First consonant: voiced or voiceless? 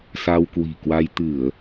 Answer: voiceless